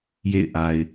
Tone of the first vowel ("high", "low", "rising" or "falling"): falling